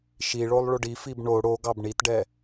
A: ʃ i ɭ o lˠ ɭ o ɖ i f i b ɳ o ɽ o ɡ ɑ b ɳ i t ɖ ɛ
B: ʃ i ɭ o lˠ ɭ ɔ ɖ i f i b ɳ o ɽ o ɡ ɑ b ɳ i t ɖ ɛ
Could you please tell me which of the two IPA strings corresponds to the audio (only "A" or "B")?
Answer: A